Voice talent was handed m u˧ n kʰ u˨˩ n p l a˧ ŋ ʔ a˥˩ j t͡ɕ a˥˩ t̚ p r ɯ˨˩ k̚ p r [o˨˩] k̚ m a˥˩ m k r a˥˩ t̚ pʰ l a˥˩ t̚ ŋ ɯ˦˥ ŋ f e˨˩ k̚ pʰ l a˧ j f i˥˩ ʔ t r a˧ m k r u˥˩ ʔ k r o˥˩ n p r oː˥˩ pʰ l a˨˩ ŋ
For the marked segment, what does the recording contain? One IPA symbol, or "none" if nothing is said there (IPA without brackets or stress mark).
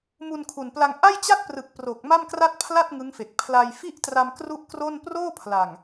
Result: o˨˩